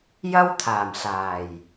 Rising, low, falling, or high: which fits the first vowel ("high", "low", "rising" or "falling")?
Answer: high